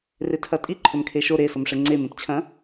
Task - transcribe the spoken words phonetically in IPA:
r e tʰ ɐ tʼ i ǃʰ ɵ m kʰ e ʃ o ɾ e s o m ʂ e ŋ͡ǀ e m ẽ p t͡ɕʰ ɐ̃

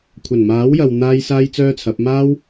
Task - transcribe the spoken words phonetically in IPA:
kʷʰ ɐ˨˩ n m aː˨˥ w j ɐ˨ w n̪ aː˥ j s aː˥ j t͡s œː˥ t͡sʰ ɐ˨˥ p̚ m aː˥ w

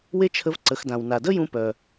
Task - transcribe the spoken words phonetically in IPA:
w e˥ t͡ʃʰ ə˧˥ v ǀ ə˩˧ x d ã˩ w n a˩ d ə˥ j ũ˧ p œ˩

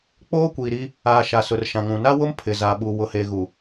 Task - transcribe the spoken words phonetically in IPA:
k͡p oː˦ kʷ iː˨ ɾ i˦ | aː˨ ʃ a˨ s ʊ˨ r ʃ ã˨ ŋ ũ˨ n a˦ w ʊ˦ m pʰ ɪ˨ z a˨ ɓ u˨ w ʊ˨ h eː˨ ɣ u˨

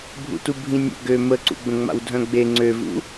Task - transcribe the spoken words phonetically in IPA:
bʱ ṵ t u bʱ ĩ nʲ ə̰ ɡ ø m ə ǀ ṵ ɡ͡b ə̃ ŋ͡m a̰ w dʱ œ̃ ɡ͡b e ŋ͡ǀ ø v ṵ

